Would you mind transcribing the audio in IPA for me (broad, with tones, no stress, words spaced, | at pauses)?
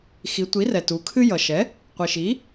xi˩˧tʷi˩˥rɛ˩ tu˩˧kʰɨ˦ jʌ˩ʃɛ˩˥ | qʷi˩ʃi˩˥